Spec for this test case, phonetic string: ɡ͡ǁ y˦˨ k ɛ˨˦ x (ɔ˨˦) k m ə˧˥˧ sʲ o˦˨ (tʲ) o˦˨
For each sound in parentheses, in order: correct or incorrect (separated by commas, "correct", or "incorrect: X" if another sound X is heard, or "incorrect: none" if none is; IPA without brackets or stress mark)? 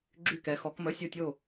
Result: correct, correct